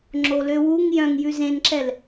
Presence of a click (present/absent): present